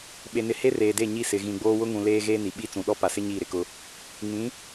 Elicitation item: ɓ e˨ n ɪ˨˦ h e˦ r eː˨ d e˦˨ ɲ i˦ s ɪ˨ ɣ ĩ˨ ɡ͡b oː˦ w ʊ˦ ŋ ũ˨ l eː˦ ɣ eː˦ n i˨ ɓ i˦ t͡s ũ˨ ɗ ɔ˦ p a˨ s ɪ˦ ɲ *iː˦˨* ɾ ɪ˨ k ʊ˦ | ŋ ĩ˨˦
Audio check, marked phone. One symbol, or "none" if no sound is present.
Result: iː˦˨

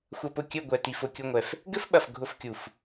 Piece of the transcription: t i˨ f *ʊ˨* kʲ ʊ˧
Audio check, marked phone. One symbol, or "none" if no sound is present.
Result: ʊ˨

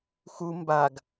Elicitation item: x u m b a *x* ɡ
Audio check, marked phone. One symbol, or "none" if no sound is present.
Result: none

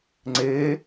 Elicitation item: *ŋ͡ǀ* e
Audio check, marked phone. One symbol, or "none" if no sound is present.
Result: ŋ͡ǀ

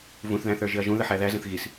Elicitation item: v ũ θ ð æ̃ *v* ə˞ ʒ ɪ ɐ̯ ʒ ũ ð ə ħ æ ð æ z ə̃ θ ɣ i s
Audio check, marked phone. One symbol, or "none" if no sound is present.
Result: θ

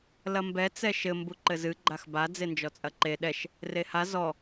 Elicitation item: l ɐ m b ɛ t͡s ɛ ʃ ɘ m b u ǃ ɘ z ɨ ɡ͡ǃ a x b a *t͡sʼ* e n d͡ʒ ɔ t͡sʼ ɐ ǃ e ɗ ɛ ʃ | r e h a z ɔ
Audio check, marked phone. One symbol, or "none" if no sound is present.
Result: d͡z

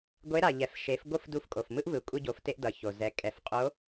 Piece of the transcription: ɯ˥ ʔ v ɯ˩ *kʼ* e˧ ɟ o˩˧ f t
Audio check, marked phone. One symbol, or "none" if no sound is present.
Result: kʷʼ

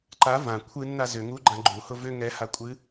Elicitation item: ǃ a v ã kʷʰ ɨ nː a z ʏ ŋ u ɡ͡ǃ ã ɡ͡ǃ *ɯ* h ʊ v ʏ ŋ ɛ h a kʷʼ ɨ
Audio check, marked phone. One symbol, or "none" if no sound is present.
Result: u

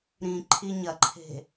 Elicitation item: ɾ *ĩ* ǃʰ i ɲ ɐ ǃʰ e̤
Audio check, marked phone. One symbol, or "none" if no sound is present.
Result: ĩ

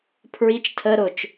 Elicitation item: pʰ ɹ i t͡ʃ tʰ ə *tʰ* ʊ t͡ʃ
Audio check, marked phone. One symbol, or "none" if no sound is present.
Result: ɾ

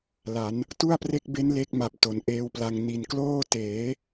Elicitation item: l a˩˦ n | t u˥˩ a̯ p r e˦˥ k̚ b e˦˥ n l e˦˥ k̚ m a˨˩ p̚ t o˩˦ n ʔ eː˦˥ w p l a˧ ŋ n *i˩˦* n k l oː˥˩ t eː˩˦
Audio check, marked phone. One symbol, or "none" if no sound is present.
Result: i˨˩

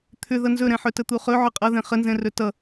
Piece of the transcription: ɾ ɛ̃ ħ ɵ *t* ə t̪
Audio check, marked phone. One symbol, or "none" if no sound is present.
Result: t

